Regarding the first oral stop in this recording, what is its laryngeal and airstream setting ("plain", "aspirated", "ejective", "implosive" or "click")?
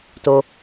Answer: plain